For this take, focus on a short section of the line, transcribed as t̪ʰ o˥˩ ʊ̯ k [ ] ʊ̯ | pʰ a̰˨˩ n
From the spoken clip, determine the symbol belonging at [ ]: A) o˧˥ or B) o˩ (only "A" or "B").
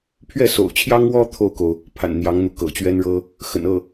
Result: B